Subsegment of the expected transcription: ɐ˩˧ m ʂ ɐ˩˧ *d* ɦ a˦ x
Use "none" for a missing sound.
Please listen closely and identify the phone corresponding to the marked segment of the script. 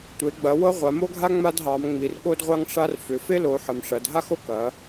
d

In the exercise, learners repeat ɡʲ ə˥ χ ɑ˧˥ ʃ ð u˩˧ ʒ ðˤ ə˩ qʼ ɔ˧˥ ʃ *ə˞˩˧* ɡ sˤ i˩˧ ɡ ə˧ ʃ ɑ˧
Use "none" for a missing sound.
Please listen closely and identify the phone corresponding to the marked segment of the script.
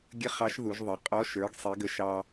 ə˞˩˧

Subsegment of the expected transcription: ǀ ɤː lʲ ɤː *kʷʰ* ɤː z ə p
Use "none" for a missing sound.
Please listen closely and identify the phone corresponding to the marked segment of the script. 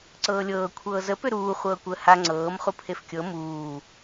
kʷʰ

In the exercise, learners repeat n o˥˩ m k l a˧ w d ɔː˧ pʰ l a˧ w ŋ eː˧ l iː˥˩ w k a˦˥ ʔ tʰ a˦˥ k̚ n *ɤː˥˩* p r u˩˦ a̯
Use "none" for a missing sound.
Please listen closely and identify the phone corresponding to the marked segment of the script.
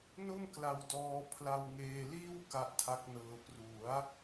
ɤː˧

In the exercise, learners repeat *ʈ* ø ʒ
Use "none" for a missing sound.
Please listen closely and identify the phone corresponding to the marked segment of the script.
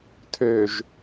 tʰ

